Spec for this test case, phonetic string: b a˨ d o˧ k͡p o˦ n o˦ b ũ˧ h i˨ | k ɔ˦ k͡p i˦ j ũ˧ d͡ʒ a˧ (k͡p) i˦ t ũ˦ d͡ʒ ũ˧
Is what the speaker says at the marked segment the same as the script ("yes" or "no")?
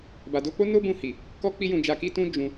no